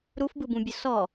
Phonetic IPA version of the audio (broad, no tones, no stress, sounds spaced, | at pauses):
ɾ u f b ɯ b ũ bʲ ʊ s ɔ